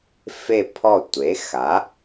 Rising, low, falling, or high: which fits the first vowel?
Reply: falling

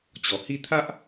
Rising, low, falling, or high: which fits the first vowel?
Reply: low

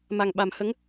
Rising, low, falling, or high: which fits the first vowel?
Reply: low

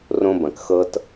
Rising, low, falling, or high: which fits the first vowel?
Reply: high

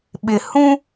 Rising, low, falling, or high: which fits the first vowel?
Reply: low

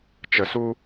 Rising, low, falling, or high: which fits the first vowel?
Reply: low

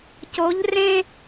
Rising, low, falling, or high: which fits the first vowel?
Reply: rising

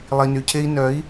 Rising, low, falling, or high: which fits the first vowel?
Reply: low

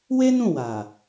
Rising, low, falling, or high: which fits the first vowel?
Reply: high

